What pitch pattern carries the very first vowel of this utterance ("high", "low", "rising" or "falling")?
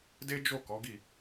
high